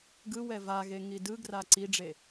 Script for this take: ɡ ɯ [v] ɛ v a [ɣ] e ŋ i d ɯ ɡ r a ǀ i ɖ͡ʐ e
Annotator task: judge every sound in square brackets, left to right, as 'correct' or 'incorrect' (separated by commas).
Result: incorrect, correct